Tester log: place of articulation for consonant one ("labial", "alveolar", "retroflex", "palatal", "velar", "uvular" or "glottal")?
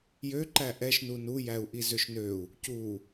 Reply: palatal